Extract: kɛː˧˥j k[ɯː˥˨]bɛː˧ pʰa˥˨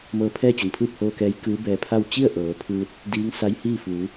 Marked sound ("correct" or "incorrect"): incorrect